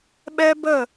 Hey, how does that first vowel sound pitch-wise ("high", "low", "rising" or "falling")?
high